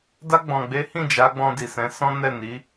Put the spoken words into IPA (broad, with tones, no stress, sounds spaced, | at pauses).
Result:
d a˧ ɡ͡b ɔ̃˨ ɡ͡b e˨˦ h ĩ˦˨ d͡ʒ a˨˦ ɡ͡b ɔ̃˧ d i˨ s ɛ̃˨˦ s ɔ̃˦ n ɛ˦˨ n i˨˦